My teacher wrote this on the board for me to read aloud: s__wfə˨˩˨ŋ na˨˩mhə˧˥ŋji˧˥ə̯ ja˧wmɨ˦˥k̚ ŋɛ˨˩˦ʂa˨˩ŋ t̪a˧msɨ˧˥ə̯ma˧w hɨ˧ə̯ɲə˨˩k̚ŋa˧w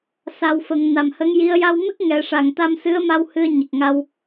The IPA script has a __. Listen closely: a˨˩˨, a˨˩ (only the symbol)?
a˨˩